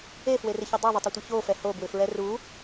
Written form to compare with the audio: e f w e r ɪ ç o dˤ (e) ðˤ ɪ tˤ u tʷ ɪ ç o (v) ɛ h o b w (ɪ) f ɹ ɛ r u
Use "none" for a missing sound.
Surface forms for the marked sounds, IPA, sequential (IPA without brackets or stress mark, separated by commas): e, f, ɪ